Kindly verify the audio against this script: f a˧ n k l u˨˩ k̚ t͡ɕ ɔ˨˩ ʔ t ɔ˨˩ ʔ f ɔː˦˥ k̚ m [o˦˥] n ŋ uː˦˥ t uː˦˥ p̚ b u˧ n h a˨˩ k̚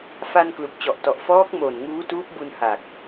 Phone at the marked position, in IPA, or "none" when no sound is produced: o˨˩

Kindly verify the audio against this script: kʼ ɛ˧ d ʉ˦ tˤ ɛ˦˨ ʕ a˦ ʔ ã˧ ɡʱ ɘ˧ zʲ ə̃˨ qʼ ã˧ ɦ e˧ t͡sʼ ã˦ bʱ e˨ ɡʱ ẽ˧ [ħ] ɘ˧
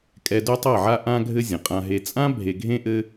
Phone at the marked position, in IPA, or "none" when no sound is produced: ʔ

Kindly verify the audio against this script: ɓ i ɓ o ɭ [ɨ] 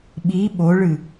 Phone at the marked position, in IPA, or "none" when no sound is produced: ɨ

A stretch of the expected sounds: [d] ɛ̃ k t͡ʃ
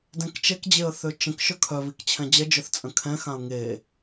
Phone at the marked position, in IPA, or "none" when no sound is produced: d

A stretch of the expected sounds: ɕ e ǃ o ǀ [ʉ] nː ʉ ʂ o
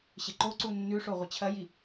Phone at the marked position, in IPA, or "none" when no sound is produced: u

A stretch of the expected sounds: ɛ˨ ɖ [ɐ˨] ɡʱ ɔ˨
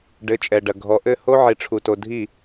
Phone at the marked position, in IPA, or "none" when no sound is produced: ɐ˨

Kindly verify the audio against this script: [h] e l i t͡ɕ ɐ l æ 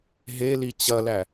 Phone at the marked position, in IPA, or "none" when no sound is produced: ɦ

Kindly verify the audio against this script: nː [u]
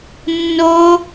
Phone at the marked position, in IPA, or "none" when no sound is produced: o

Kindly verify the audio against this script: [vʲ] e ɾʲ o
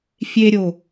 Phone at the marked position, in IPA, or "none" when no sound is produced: fʲ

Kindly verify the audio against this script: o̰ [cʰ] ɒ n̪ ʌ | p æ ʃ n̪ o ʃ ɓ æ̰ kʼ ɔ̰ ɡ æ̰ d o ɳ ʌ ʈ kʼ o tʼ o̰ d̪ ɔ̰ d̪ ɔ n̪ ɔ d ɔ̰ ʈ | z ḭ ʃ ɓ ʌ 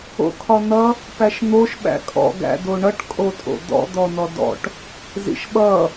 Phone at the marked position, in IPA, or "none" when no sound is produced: kʰ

